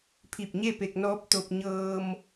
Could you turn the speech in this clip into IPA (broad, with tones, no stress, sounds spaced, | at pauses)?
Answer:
pʰ i˧˩ p̚ ɲ e˥˨ p e˧ k̚ n ɔː˧˥ p̚ t̪ o˧ p̚ ɲ ɤː˧ m